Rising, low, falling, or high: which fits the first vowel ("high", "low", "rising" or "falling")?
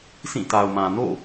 falling